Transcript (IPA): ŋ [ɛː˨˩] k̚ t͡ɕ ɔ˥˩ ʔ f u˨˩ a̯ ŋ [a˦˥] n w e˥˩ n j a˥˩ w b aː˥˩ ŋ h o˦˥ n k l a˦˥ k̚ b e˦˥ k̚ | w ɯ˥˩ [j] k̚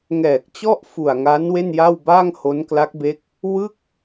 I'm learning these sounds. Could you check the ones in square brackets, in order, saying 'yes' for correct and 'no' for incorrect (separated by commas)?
yes, yes, no